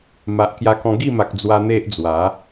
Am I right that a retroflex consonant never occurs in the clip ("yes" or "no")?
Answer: yes